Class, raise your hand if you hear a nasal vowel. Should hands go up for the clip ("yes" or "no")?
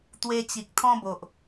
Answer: yes